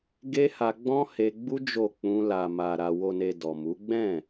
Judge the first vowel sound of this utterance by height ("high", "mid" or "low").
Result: mid